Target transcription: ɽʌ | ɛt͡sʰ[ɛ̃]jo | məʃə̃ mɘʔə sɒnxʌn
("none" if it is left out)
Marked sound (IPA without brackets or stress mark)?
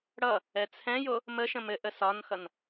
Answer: ɛ̃